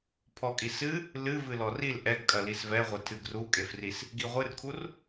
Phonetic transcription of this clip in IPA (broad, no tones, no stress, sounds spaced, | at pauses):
pʰ ɔ kʼ i s ɨ | l ɨ v ɨ l ɔ r i l ʔ ɛ ɡ kʼ ɐ l i s v ɛ ʁʷ e tʰ ɨ ɡ r u kʼ e f r i s | ɡ i ʁʷ ɨ r kʰ u r